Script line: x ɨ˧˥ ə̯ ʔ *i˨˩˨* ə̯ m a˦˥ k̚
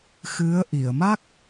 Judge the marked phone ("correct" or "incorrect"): correct